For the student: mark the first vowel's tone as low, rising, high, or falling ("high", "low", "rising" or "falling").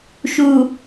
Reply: low